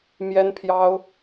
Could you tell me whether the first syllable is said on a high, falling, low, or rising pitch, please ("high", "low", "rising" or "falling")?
high